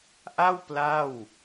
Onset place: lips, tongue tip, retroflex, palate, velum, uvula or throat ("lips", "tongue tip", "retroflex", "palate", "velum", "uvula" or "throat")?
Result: throat